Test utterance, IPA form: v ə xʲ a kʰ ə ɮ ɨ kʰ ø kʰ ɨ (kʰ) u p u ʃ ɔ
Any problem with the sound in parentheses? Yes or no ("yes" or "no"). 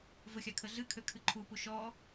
yes